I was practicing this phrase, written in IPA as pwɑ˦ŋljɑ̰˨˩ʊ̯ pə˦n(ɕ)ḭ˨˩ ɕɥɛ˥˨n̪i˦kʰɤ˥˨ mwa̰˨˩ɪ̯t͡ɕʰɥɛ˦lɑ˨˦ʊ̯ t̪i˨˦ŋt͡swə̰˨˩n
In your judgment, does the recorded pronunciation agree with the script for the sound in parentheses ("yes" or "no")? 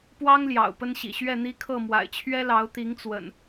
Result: yes